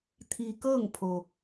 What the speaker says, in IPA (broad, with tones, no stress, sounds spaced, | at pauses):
t̪ʰ i˧ k ɤː˥˨ ŋ pʰ o˩